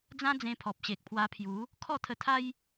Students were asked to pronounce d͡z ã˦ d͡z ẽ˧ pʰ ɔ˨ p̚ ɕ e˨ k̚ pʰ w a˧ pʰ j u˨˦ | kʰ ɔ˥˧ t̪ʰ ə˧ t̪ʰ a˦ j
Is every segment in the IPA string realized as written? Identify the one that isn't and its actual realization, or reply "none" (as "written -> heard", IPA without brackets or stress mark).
none